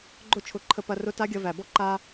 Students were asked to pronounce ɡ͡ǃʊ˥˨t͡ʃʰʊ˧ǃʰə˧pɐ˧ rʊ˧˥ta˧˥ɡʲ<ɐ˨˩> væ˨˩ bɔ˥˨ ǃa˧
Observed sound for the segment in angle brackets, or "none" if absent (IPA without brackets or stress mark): ɐ˧